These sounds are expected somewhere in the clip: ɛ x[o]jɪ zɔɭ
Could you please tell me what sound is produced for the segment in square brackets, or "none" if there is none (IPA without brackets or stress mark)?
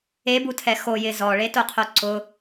o